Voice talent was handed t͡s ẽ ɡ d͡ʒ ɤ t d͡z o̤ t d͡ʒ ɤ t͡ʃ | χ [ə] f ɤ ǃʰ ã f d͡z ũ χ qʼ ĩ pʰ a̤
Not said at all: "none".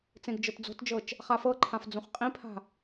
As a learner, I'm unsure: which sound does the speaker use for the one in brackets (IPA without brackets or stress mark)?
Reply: a